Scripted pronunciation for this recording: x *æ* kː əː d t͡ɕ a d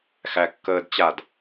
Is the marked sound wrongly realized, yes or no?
no